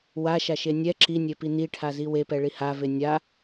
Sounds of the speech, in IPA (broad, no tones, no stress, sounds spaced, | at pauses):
w a ʃ a ʃ e nʲ ɛ ǁ i nʲ e p i n i ʈʰ a z i w e p ɛ ɭ i h a v e nʲ a